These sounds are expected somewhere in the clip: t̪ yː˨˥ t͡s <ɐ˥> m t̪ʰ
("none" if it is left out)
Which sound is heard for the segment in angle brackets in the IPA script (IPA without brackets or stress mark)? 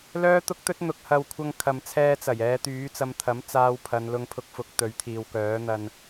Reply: ɐ˧